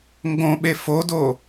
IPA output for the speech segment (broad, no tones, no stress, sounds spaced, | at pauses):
ŋ ɡ õ ɓ e f o d o